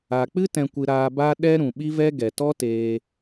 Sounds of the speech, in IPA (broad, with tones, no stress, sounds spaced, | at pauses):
a˨ k͡p ɨ˦ t ɛ̃˧ kʷ ɨ˧ ɾ aː˧ b a˦ ɗ ɛ˦ ɾ ũ˨ ɓ i˦ v ɛ˦ ɡ ɛ˨ t ɔ˦ t eː˧